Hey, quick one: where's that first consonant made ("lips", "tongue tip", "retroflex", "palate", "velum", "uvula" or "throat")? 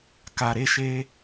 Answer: velum